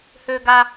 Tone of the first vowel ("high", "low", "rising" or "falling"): high